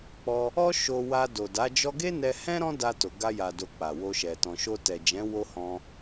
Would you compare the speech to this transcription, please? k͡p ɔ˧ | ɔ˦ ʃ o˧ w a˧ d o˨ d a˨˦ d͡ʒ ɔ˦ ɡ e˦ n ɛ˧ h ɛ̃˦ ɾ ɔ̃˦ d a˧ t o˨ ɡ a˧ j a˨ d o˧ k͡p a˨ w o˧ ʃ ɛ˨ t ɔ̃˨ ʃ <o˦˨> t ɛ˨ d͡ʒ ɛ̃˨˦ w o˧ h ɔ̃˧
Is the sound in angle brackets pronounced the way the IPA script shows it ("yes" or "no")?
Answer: no